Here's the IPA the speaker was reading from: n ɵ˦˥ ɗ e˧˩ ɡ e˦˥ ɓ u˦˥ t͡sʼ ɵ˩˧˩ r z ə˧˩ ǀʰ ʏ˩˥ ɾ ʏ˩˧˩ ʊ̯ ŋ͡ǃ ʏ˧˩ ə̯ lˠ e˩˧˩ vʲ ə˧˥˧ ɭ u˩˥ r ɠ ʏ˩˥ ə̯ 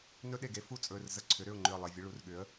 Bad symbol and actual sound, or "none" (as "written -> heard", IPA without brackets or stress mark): ɓ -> f